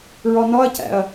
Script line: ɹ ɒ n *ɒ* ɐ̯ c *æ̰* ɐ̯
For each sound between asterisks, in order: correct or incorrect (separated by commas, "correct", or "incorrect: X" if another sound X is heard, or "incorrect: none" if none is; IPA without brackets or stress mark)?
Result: correct, correct